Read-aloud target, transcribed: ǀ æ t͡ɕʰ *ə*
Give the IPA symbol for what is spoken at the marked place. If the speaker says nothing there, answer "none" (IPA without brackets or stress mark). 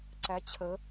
ə